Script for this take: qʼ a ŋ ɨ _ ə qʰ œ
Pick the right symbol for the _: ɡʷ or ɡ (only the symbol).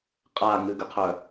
ɡ